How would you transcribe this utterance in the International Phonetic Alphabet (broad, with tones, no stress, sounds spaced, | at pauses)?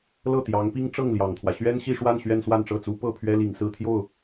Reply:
l ɤ˥˩ t̪ j ɑ˧˥ ŋ p i˥ ŋ ʈ͡ʂ ɤ˥˩ ŋ l j ɑ˨˩ ŋ t̪ʰ w ä˦ ɕ ɥ ɛ˥ n ɕ i˥˧ ʂ w a˥˧ n ɕ ɥ ɛ˥˧ n s w a˥˧ n ʈ͡ʂ ɤ˥˩ t͡s u˥ p ɤ˥˩ pʰ ɥ ɛ˥ l i˨˩ ŋ s ɹ̩˥˧ t̪ʰ j o˥˩ ʊ̯